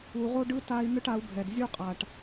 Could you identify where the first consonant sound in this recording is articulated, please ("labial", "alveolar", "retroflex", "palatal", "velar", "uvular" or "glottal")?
uvular